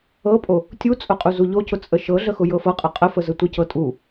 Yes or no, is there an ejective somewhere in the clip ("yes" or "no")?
yes